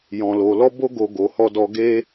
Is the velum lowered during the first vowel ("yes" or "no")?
yes